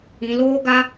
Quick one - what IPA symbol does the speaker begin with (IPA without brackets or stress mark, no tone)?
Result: ĩ